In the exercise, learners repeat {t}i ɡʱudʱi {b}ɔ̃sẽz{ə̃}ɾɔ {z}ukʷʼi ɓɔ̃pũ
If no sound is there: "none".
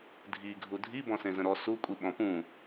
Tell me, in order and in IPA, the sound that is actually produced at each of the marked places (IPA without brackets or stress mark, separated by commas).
dʱ, b, ə̃, s